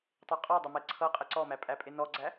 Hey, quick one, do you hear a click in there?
yes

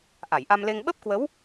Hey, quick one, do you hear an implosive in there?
yes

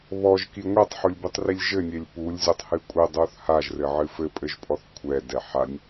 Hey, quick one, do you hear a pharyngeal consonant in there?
yes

